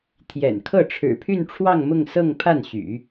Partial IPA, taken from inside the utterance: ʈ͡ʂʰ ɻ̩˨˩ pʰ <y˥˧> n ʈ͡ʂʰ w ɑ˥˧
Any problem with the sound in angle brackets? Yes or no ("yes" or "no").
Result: no